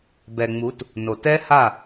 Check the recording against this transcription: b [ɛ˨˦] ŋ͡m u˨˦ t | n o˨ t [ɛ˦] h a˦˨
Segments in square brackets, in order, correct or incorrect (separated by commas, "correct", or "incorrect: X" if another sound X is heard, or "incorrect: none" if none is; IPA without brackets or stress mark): incorrect: ɛ˨, correct